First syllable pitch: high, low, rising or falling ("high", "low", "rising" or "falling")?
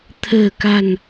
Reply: low